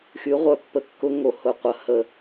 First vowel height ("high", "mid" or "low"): high